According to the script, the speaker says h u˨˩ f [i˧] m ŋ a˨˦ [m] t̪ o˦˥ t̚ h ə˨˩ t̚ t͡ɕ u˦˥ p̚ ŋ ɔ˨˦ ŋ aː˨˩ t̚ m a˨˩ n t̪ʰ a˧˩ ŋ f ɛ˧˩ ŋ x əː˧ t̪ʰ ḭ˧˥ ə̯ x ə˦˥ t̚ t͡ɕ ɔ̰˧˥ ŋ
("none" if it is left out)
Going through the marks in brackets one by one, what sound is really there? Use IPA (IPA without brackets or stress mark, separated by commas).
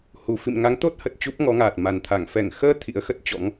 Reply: ḭ˧˨, ŋ